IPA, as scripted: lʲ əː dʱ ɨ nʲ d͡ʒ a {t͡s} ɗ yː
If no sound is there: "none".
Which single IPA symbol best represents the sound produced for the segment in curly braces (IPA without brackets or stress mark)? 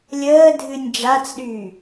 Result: t͡s